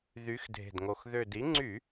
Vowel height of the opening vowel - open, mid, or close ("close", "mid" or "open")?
close